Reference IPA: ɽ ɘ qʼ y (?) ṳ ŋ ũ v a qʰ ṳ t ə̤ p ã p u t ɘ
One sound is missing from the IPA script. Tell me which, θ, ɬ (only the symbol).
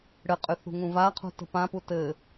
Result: θ